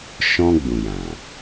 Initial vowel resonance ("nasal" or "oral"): nasal